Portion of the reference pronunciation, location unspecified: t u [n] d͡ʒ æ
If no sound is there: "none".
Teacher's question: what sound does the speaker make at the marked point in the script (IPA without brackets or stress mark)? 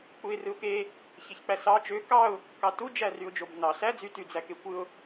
none